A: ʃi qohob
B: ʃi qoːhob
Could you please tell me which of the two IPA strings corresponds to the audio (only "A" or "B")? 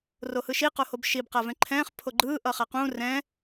A